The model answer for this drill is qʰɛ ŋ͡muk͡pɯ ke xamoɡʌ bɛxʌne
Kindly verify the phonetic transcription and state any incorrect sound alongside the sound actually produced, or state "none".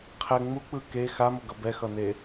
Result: none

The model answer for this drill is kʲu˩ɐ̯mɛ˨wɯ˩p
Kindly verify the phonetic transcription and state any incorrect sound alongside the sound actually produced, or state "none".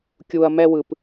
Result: none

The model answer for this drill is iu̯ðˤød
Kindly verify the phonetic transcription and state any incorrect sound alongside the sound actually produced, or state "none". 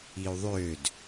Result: none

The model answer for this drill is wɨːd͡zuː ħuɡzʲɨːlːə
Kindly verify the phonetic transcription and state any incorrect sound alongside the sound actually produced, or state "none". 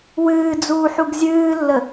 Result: none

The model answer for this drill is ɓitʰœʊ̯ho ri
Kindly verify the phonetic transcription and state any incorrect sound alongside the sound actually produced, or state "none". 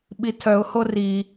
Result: none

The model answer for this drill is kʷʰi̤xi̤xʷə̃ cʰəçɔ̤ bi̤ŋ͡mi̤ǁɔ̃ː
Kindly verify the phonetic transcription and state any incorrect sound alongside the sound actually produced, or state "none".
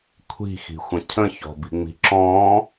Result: ə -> ə̃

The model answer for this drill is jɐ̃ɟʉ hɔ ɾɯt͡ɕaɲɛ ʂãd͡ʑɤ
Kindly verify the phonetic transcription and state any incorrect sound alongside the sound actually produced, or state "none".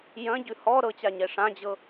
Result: ɯ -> ɤ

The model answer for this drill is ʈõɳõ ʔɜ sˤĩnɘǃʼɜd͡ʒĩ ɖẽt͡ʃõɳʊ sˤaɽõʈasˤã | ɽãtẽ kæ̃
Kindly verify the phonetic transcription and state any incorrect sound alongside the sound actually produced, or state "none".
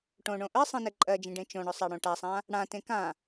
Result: æ̃ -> ã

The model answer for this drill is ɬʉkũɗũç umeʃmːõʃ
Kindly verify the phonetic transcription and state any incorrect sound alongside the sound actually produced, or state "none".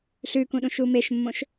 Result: ç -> ʃ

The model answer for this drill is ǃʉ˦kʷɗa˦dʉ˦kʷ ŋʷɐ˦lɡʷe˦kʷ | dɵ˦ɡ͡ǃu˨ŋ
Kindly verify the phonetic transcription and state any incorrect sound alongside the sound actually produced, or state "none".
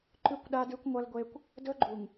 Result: none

